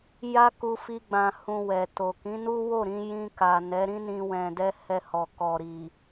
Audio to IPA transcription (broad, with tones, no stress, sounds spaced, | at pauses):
j a˦ k u˧ f i˧ ɡ͡b ã˨ h ũ˨ w ɛ˨ t o˨ k ĩ˨˦ n u˦ w o˦˨ ɾ ĩ˧ j ĩ˧ k a˨ n ɛ˨˦ ɾ ĩ˦ n ĩ˧ w ɛ̃˨ d ɛ˧ h ɛ˧ h ɔ˨ k ɔ˨ ɾ i˨